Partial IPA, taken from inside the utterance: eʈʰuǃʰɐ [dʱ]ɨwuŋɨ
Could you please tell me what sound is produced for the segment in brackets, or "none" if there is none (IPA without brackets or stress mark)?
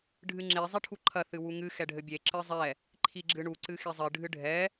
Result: θ